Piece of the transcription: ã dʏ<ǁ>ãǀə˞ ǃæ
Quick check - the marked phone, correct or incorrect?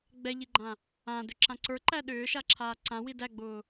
correct